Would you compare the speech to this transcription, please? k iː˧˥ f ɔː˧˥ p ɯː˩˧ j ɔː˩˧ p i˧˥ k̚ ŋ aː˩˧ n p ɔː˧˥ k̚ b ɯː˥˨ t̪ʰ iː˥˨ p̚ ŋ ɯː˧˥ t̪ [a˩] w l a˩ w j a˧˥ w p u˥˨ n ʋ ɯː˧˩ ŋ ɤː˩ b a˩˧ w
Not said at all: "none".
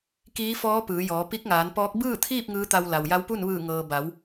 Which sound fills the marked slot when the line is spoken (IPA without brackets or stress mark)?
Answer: a˧